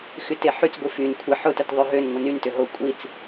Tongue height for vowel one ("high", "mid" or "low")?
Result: high